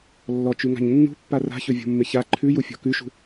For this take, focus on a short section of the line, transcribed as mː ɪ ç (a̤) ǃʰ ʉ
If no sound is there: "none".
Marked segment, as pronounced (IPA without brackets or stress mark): a